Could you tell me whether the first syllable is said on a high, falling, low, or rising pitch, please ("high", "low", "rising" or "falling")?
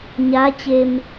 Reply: rising